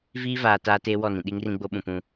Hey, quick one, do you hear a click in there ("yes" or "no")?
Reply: no